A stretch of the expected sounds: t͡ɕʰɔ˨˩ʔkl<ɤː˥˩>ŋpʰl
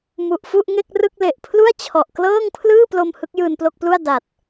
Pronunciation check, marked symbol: correct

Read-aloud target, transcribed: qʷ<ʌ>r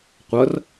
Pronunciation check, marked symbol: correct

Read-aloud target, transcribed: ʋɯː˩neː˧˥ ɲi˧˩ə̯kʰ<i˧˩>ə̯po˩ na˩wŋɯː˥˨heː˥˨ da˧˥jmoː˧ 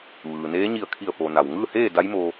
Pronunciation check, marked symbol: correct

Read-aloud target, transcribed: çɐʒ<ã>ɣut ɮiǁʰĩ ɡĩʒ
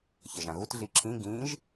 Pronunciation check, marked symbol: correct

